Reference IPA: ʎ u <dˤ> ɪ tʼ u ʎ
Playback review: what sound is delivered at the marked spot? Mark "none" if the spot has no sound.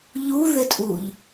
ð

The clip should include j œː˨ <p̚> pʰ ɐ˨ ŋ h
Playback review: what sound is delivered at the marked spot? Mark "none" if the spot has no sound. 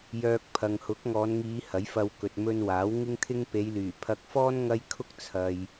k̚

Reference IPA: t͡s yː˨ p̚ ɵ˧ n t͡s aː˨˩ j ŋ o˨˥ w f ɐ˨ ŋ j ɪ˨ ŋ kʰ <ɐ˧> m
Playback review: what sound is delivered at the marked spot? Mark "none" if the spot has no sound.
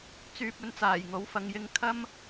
ɐ˧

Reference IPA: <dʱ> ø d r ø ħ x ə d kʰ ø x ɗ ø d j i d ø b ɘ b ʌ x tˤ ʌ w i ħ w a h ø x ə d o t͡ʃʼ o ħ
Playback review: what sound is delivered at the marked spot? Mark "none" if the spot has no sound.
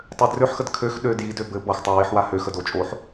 tˤ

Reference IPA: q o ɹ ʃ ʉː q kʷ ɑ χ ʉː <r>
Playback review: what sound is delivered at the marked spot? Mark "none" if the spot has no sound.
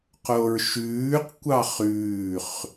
χ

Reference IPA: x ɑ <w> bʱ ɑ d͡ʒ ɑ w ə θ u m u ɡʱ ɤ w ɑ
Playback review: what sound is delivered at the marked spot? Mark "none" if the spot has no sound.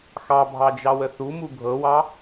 none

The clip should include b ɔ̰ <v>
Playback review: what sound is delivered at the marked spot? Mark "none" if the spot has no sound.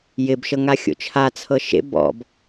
b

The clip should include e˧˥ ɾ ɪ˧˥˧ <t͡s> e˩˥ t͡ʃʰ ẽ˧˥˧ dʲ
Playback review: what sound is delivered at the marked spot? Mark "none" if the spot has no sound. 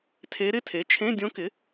tʰ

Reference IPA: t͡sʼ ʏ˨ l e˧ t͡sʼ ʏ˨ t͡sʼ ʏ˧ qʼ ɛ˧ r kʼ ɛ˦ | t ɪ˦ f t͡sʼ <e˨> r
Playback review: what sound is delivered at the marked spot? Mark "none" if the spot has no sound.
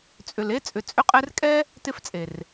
e˨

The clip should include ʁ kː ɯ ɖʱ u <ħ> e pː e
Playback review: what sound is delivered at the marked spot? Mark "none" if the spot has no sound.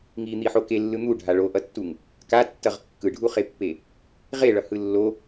χ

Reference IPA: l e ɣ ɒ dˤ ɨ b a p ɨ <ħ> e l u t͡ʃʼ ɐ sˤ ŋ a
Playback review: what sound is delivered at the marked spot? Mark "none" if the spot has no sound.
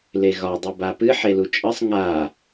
ħ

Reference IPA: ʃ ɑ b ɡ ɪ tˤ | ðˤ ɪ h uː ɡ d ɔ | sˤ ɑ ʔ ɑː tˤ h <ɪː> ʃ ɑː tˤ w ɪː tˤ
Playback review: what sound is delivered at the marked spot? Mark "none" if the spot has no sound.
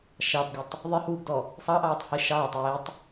ɪː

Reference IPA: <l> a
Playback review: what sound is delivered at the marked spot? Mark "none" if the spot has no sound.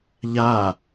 ʎ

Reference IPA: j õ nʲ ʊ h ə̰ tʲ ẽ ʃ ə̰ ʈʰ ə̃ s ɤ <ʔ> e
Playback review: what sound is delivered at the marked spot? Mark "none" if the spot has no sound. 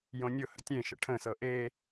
ʔ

